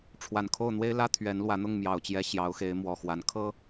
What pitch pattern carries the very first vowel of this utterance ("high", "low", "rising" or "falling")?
low